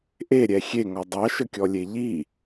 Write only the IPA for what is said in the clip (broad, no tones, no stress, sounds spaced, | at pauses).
ʔ e ɾʲ ɛ xʲ e ŋ ɔ dˤ ɑ ʃ ə kʲ ɔ lʲ e ʎ i